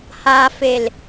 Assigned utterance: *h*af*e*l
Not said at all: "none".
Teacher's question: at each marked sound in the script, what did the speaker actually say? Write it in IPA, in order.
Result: h, e

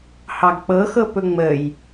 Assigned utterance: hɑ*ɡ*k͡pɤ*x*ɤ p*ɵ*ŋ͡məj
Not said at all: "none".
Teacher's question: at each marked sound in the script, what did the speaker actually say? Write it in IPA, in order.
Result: ɡ, x, ɵ

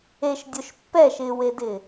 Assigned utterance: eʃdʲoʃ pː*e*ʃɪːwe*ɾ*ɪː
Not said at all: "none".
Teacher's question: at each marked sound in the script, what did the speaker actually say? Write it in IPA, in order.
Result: ɛ, d

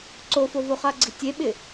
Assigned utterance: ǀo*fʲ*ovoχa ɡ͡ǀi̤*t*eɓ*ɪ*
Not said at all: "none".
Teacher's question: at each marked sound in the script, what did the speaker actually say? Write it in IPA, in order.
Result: f, tʲ, ɪ

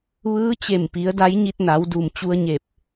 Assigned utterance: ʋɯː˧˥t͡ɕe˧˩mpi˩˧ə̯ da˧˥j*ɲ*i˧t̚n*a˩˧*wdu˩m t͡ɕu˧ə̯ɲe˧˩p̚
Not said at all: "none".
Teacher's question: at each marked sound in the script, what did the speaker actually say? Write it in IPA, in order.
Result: ɲ, a˩˧

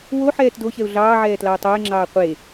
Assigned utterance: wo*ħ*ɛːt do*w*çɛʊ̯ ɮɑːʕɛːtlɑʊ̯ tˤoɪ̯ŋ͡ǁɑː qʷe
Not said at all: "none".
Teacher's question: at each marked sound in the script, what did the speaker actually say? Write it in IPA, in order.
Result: ħ, none

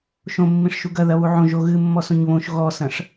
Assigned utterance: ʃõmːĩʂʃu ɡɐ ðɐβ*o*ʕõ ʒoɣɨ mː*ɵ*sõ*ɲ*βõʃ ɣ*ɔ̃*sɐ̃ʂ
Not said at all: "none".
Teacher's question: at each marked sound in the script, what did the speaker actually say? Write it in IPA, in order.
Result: u, ɔ, ɲ, ɔ

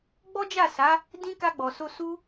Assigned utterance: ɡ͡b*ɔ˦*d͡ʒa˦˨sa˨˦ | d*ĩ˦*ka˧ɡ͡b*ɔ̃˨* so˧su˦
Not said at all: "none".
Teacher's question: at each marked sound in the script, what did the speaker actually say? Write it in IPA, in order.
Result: ɔ˦, ĩ˦, ɔ˨

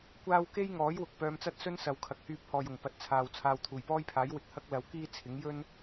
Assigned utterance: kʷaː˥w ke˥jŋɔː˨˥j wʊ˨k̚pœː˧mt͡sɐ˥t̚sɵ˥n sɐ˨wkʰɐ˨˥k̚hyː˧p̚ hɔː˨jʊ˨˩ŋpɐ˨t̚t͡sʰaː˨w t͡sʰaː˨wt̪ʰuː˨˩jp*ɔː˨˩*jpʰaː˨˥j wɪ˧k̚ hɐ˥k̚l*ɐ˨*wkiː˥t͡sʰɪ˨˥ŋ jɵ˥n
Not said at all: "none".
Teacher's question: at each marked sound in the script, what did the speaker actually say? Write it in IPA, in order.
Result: ɔː˥, ɐ˨

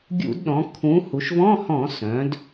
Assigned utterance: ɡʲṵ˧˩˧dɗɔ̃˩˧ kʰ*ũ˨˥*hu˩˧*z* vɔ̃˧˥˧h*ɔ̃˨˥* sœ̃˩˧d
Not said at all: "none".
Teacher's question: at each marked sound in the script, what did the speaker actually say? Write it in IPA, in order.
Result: ũ˨˥, ʃ, ɔ̃˧˩˧

